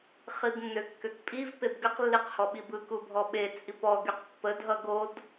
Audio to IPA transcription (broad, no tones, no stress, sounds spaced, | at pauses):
χ i b nː ø kː ø k pʼ i v p e b ɡ ə q lː i q h ɔ ɓ i b ɯ k u bʱ ɔ ɓ e t͡sʼ i p ɔ ɡ y q pː ə dʱ ʌ ɡ o d